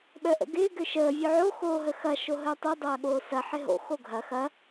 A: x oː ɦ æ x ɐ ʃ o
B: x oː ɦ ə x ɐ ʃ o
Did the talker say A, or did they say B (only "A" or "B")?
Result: B